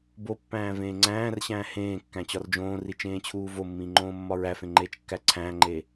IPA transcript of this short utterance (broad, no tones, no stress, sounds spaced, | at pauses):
b o pː æ̃ː v ẽː ŋ͡ǀ æ̃ː r ɕ æ̃ː h ẽː kː æ̃ t͡ɕ ɒ r d͡ʒ õː r i t͡ʃ ẽː t͡ɕʰ uː v o mː ĩː ŋ͡ǃ õː mː ɒ ɹ æ f ẽ ŋ͡ǃ eː t͡ʃ kː æ ǀʰ æ̃ː ŋ͡ǃ eː